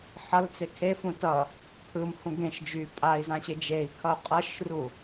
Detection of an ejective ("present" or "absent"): present